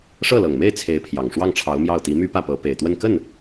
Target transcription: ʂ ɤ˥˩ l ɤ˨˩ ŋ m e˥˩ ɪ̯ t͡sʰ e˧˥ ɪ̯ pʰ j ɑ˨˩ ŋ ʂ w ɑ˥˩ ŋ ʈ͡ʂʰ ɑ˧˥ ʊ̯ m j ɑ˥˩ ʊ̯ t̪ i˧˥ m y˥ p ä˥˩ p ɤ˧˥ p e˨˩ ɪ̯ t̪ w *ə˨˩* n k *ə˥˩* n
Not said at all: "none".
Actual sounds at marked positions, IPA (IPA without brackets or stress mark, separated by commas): ə˥˧, ə˥˩